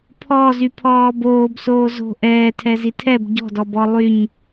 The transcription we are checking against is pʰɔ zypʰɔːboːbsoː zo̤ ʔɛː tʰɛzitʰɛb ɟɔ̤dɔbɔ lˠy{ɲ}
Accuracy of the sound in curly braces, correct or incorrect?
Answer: correct